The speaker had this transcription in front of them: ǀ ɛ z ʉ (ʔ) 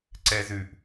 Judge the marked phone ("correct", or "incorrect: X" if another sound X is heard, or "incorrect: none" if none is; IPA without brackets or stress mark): correct